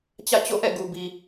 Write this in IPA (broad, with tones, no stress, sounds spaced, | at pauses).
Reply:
t͡ɕ ä̰˦˨ t͡ɕ o̰˦˨ ʔ ɛ̰˦˨ ɡ u˨ b i˨